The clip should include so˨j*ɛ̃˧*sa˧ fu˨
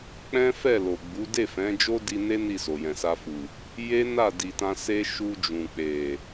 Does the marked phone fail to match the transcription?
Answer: yes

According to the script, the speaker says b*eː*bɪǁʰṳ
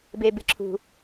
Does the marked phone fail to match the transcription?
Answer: yes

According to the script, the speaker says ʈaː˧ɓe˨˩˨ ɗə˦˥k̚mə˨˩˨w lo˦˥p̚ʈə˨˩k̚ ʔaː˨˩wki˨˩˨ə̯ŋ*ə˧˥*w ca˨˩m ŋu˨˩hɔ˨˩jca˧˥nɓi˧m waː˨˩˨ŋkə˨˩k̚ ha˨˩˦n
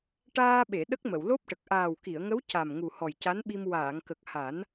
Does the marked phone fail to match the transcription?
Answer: no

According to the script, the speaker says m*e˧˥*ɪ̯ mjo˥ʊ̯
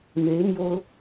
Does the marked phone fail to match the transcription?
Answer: no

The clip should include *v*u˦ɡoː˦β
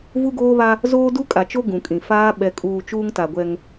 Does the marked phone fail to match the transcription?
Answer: no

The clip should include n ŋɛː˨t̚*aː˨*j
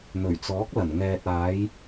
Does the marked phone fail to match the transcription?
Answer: yes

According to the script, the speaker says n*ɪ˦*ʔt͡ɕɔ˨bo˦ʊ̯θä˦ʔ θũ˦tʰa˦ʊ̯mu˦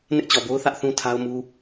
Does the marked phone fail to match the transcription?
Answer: no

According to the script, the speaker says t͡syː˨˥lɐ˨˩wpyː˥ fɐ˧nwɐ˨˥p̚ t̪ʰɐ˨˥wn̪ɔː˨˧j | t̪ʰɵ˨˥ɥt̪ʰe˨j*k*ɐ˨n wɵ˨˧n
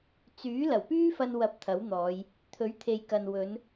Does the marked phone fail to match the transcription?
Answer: no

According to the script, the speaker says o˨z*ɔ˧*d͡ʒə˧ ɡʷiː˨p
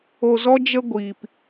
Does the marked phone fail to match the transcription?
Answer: no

